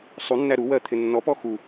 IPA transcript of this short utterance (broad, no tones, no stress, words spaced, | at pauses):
sˤunːæ ɾuwɜt̪ʰɪ nːɔpɔ xu